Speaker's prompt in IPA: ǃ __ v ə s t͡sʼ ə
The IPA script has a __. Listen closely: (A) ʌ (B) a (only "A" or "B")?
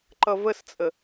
A